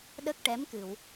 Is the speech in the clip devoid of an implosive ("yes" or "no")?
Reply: no